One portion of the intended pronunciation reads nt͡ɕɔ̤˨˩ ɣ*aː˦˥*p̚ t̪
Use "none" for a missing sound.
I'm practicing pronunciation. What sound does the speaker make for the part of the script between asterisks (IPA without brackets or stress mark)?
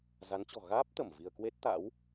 aː˦˥